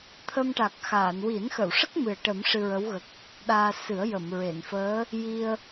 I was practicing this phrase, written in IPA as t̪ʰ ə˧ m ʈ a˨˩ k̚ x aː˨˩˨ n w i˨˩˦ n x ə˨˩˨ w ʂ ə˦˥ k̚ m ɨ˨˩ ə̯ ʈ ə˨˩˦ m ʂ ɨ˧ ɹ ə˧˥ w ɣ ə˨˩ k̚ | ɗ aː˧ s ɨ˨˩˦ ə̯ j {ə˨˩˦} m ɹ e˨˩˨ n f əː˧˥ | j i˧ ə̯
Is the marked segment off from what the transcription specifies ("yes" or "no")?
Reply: yes